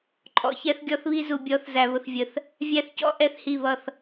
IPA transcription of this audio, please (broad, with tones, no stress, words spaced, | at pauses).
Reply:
ǃʼɔ̰˨çɛ˦θɡʲɔ˦θβi˦ zu˨bʲɔ˨˦θzæ˨ βʊ˨θvʲə˨θ | vʲæ˦θcɔ̰˦ ʔɛ˦˨θhi˦˨βʌ˦˨θ